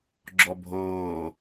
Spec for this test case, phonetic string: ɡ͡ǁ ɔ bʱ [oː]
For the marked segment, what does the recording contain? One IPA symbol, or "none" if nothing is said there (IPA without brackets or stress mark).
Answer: oː